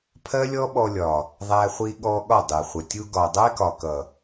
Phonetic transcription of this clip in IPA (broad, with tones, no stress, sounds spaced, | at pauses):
pʰ ɜ˦ lʲ ɔ˦ ɓ ɔ˧ lʲ ɒ˨ | ðˤ æ˧ χʷ i˧ ɠ ɔ˧ ɠ ɒ˦˨ dˤ ɛ˨ χʷ ə˨ tʲ u˧ ɡ ɒ˨ dˤ æ˦ k ɒ˨ k ʌ˨